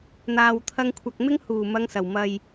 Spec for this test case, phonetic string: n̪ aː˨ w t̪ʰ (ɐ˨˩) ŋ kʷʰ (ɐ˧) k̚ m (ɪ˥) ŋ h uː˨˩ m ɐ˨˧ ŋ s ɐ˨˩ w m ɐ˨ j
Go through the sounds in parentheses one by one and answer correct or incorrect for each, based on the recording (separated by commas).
incorrect, incorrect, correct